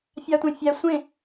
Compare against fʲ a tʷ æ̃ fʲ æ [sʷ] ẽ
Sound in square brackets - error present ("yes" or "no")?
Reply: no